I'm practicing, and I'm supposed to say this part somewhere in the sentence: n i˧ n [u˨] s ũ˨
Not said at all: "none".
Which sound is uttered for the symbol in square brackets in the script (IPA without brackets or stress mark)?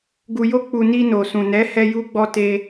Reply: o˨